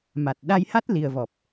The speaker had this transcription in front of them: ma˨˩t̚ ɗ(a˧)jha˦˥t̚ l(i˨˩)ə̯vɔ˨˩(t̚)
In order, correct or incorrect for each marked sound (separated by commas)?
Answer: correct, correct, incorrect